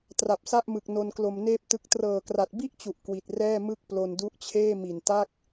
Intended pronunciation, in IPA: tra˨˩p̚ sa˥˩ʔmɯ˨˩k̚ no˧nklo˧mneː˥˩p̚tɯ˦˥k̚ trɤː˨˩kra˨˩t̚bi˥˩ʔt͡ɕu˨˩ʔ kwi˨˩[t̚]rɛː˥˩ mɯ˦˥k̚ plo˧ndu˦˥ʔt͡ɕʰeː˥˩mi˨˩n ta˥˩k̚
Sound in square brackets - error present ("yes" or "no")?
no